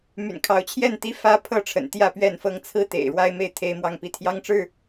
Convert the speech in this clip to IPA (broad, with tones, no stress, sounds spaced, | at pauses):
m y̰˨˩ n kʰ ɑ˨˦ ʊ̯ t͡ɕʰ j ɛ˥˨ n t̪ i˦ f ä˦ pʰ ɤ˥˨ ʈ͡ʂʰ ə̰˨˩ n t̪ j ä˥˨ p ɥ ɛ˥˨ n f ɤ˦ ŋ t͡sʰ ɹ̩˦ t̪ ḛ˨˩ ɪ̯ ɻ w a˦ ɪ̯ m e˥˨ ɪ̯ t̪ʰ e˦ ɪ̯ m w ɑ˥˨ ŋ p i˥˨ t̪ʰ j ɑ˦ ŋ ʈ͡ʂ ɻ̩˥˨